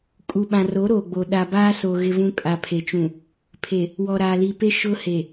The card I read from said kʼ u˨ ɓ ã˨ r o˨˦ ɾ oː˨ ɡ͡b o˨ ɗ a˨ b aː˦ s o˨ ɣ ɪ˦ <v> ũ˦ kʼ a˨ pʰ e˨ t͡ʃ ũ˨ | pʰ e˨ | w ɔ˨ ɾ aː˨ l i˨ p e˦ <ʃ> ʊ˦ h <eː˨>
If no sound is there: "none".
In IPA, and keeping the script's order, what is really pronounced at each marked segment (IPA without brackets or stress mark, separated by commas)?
v, ʃ, e˨